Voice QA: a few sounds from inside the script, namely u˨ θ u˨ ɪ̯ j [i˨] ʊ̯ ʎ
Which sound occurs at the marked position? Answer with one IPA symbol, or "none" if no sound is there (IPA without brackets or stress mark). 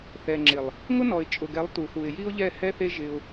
i˦